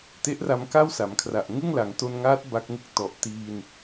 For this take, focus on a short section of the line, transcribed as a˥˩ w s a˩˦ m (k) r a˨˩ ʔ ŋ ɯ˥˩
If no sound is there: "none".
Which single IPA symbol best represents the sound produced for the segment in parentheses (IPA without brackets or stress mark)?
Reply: kʰ